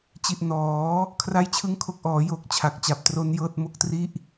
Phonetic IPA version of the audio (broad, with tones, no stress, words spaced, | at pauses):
t͡ɕi˨˩ʔ nɔː˩˦ | kʰra˥˩jt͡ɕʰɯ˥˩ŋkʰo˦˥k̚ ʔɔː˩˦jo˨˩k̚ t͡ɕʰa˨˩k̚t͡ɕa˨˩p̚tro˦˥n jɤː˥˩t̚mo˥˩k̚tri˥˩ʔ